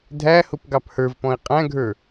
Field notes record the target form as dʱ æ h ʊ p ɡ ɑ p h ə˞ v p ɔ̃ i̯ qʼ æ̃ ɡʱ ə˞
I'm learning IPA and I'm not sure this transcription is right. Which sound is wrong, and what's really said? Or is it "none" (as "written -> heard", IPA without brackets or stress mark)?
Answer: none